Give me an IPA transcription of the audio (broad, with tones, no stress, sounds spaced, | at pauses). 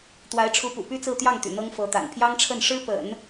t̪ w a˧˥ ɪ̯ ʈ͡ʂʰ u˧˥ p ṵ˨˩ p y˥ t͡s ɹ̩˥˧ t̪ j ɑ˥˩ ŋ t̪ y̰˨˩ n̪ ɤ˥ ŋ f ɤ˧˥ t̪ a̰˨˩ n pʰ j ɑ˥ ŋ ʈ͡ʂʰ ə˥˩ n ʂ ɻ̩˥ p ə̰˨˩˦ n